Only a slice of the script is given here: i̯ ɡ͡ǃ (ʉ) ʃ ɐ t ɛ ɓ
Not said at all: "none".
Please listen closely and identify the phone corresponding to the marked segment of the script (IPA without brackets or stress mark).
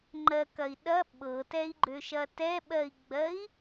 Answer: ø